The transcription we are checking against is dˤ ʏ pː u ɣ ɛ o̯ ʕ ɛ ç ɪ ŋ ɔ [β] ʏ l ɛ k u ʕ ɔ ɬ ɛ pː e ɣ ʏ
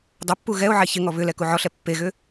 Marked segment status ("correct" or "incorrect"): correct